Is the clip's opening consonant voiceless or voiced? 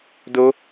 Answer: voiced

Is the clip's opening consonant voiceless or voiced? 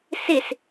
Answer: voiceless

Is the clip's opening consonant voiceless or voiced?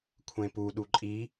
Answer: voiceless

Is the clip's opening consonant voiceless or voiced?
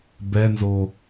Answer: voiced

